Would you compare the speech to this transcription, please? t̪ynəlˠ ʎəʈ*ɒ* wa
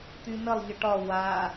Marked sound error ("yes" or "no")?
no